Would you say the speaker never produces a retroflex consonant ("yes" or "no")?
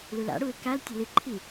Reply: no